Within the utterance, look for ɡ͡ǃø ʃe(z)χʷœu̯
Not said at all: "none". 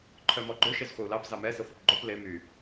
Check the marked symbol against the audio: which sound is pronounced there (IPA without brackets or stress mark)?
z